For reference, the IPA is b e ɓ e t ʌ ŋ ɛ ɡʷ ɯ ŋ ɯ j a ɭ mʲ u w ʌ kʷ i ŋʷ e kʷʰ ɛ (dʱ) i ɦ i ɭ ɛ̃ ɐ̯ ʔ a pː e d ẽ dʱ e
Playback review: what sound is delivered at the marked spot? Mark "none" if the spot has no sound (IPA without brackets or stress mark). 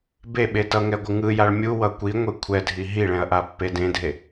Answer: dʱ